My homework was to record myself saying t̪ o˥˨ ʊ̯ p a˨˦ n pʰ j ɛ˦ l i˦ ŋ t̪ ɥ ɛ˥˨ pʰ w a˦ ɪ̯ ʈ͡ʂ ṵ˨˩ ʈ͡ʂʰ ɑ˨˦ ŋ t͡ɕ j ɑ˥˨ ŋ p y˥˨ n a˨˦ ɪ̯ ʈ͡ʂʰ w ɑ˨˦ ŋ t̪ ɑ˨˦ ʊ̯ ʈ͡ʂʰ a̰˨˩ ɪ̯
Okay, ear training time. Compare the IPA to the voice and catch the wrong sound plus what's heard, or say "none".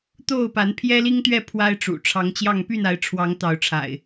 none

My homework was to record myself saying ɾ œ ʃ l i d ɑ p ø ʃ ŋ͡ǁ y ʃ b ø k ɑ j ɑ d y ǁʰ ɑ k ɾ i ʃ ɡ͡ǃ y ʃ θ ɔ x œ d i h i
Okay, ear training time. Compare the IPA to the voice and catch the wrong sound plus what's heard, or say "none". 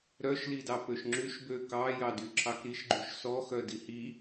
θ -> s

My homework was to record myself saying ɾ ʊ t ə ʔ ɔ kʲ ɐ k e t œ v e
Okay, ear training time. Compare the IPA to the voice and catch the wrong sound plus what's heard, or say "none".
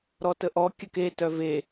ʊ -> ɔ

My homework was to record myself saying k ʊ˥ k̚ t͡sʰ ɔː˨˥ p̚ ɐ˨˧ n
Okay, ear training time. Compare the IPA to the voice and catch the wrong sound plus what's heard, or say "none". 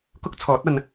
p̚ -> t̚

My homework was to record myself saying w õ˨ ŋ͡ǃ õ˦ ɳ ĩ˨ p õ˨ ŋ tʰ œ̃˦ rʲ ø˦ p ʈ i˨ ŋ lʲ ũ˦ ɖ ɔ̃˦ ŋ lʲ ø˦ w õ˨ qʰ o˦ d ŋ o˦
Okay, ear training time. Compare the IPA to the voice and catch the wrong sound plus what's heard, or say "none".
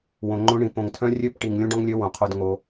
none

